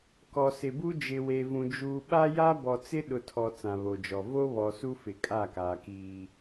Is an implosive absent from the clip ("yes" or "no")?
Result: no